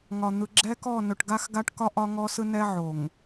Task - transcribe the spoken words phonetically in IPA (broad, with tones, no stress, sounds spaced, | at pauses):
ŋ ɒ˨ n̪ ɯ˨ ɡ͡ǁ ɛ˦ k ɔ˦˨ n ɵ˨ ʈ ɡ a˦ x ɡ a˦ ʈ k ɒ˦ ʔ ɒ˦ ŋ ɔ˦ s ɯ˦ n ɛ˦ ʕ o˨ ŋ